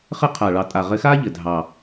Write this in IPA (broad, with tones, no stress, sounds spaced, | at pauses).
χ ɘ˦ qʰ a˨˩ ɭ ɑ˨˩ tʼ a˨˩ ʁ ɘ˨˦ x aː˦ ʎ ɘ˨˩ dʱ ɑ˨˩